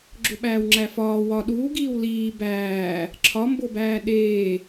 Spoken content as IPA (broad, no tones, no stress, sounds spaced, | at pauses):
ɡ͡ǁ o ɓ æː w ŋ͡ǁ æ f ɒː w ɒ ɗ uː ɡ iː w l iː b æː | ǁʰ ɒ m b o b æː ɗ eː